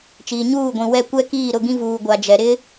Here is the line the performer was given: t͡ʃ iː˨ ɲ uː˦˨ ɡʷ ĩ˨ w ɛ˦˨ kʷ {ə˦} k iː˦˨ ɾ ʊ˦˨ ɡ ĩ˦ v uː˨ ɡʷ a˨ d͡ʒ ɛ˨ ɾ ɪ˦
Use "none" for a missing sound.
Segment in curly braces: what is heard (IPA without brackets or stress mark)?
ɛ˦